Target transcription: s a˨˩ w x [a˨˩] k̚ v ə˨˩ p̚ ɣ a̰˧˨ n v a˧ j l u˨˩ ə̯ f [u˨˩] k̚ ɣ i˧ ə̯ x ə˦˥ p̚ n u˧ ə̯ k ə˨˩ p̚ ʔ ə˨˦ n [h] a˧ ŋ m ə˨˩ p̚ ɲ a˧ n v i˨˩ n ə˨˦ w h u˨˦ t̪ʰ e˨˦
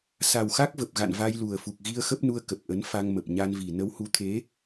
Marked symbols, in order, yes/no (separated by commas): no, yes, no